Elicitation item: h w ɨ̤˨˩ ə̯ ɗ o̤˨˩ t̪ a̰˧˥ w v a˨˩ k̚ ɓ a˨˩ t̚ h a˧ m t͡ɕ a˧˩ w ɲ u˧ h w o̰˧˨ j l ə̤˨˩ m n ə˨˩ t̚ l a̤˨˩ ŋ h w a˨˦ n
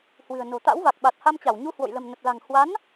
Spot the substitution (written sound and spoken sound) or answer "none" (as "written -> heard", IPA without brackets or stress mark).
ɗ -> n